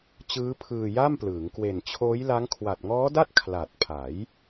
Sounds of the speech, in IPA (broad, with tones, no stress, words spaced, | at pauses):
t͡ɕɯː˦˥pʰɯː˧ja˥˩mplɯː˩˦ŋ kwe˨˩nt͡ɕʰoː˦˥j la˦˥ŋ kʰwa˨˩t̚ŋɔː˦˥da˥˩t̚ kʰla˨˩t̚pʰa˩˦j